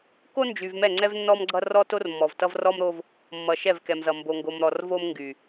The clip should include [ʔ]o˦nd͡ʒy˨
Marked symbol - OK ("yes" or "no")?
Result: no